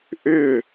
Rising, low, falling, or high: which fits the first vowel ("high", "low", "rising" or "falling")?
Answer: falling